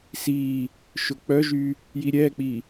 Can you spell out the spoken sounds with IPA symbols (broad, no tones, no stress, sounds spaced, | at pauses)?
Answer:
s i | ʃ ʊ k͡p œ ʒ y | j i ɾʲ ɛ k͡p i